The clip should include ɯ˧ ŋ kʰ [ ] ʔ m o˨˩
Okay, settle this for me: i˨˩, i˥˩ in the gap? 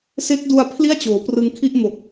i˥˩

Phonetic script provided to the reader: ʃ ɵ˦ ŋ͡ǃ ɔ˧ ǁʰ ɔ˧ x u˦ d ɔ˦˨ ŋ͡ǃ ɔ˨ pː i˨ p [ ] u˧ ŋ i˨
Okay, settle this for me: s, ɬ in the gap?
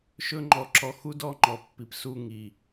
s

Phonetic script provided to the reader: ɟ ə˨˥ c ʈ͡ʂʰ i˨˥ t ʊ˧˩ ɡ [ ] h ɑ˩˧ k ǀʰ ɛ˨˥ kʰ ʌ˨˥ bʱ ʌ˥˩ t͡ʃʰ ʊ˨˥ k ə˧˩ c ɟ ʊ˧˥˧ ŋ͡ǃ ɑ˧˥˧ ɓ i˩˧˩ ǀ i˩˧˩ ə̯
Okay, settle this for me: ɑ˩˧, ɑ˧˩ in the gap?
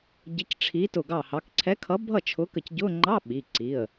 ɑ˧˩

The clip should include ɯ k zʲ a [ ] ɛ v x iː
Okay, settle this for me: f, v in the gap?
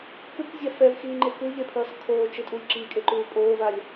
f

